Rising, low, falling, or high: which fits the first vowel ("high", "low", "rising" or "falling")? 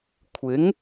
rising